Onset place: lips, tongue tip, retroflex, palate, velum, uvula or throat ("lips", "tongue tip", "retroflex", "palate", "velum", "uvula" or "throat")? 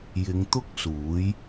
palate